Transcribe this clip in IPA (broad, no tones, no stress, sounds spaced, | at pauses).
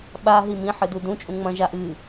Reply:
ɓ a ɦ i m ĩ ħ ɨ d u d ũ t͡ʃʼ ũ ŋ͡m ɐ̃ ʒ a ʔ ɨ